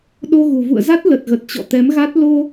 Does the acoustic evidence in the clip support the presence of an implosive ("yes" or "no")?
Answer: yes